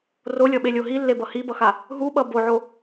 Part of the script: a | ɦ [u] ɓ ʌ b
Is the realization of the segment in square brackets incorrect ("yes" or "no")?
no